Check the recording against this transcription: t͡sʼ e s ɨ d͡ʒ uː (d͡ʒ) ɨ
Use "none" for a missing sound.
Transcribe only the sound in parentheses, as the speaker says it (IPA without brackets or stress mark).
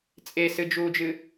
d͡ʒ